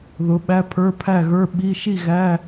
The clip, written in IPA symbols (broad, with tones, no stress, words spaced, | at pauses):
ðʊ˨˥ɓæ˧˥˧ pʰə˞˧˥˧pʰæ˥˨ɣə˞˧˥˧ɓi˧˥˧ ʃi˥˨ ɣæ˧˥˧